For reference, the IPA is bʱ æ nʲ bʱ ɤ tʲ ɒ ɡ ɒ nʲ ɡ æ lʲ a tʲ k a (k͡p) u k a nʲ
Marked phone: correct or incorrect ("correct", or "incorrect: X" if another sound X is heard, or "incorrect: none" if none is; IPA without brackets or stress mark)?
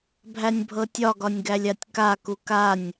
incorrect: k